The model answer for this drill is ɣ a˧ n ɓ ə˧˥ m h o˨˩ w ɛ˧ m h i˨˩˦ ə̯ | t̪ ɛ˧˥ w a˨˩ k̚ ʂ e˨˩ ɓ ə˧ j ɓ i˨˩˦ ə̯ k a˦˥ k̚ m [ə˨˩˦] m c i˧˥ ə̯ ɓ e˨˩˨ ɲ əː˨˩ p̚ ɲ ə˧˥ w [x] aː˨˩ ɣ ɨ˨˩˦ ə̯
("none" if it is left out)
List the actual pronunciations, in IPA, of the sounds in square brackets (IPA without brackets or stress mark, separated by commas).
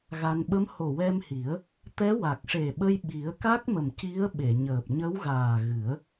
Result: ə˨˩, ɣ